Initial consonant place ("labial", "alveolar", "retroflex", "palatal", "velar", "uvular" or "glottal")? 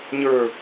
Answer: palatal